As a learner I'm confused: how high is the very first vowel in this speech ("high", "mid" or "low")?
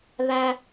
low